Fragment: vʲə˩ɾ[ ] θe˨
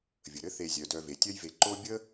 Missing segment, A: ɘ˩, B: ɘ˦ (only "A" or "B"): B